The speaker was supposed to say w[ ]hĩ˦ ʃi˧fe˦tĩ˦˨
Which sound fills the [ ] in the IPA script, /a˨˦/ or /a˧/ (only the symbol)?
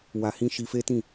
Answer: a˧